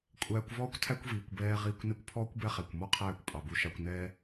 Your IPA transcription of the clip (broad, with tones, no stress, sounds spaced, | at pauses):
kʷʼ æː˧ kʷ v ɔː˦ kʷ tʰ æ˦ kʷ v iː˨ kʷ b ɛː˦ ʁ iː˦ kʷ n e˦ kʷ pʰ ɔː˦ kʷ b ɛ˦ χ æ˨ kʷ m ɔ˦ qʰ æː˦˨ kʷ pʼ ɑ˨ b u˧ ʃ ɑ˧ kʷ n ɛː˦